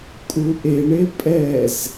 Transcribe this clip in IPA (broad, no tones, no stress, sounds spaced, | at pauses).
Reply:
kʼ u ʔ e ɳ e pʼ ɛ z